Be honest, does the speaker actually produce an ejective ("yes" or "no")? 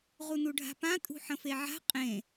yes